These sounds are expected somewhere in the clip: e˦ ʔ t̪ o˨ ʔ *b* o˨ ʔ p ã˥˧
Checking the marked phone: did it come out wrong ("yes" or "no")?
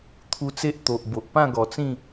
no